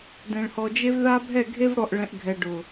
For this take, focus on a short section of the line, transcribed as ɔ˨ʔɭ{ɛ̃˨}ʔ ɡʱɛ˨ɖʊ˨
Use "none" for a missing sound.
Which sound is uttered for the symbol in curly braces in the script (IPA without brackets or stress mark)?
ɛ̃˨